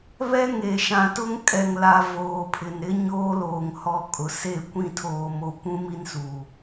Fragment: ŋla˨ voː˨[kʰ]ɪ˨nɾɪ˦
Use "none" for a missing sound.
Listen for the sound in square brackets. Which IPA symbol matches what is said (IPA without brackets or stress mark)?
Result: pʰ